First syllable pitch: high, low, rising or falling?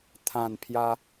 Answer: falling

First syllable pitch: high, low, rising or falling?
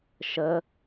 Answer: rising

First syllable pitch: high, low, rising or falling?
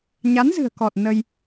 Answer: rising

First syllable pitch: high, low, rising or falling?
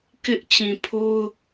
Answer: high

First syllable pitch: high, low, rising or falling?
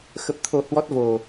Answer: low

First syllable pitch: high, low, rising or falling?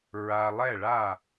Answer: low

